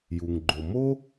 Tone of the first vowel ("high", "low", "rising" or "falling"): low